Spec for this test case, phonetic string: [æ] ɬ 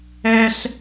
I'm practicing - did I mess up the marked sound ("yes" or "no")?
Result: yes